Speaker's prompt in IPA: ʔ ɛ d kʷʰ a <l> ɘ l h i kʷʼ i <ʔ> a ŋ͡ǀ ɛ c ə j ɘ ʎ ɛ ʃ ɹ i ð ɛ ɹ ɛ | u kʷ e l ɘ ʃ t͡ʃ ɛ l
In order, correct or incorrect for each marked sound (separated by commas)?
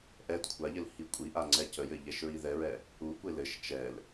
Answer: incorrect, correct